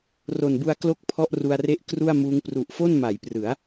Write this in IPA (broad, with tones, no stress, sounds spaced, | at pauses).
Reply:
r o˨˩ n b u˧ a̯ k l o˥˩ k̚ pʰ ɔ˥˩ ʔ r u˧ a̯ r e˥˩ ʔ k r u˥˩ a̯ m uː˦˥ ŋ p r u˨˩ ʔ f o˥˩ n m a˩˦ j p r ɯ˩˦ a̯